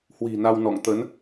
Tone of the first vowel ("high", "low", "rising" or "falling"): low